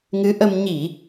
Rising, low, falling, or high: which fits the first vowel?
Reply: rising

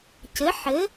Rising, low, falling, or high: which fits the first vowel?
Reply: rising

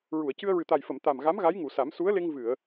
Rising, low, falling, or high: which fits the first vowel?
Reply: low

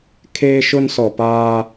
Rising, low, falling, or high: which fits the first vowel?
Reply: high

